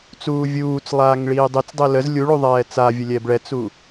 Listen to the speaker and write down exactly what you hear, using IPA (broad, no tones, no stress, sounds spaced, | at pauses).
t͡s uː vʲ uː t͡s lˠ aː ŋ ɭ iː dˤ i t͡s dˤ i l ə z lʲ u ɭ u ðˤ ɛː t͡s a vʲ ə lʲ ɛ b ɭ ɛ t͡s u